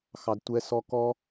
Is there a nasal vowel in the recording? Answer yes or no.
no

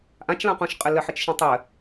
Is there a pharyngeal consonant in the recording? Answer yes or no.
yes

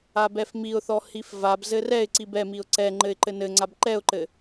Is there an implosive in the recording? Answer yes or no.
no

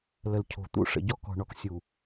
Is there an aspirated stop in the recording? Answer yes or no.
yes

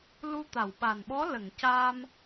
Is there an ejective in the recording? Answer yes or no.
no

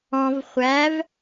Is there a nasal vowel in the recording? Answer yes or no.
yes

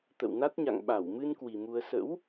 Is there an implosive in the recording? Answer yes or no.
yes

